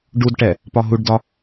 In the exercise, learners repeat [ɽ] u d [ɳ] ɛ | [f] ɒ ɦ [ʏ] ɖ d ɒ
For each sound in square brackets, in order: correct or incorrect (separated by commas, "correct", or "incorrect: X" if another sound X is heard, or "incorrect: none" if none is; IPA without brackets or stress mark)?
incorrect: ɖ, incorrect: ʈ, incorrect: p, incorrect: u